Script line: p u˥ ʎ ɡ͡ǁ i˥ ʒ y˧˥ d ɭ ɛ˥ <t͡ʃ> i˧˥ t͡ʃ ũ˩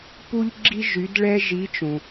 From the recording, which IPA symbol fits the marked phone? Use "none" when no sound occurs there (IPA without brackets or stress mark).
ʒ